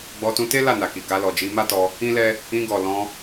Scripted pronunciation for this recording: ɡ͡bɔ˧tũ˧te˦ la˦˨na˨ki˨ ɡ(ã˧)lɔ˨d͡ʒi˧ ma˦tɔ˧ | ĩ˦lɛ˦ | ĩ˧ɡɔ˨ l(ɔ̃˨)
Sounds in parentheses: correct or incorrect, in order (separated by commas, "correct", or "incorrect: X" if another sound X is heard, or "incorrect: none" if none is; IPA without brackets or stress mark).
incorrect: a˧, incorrect: ɔ̃˧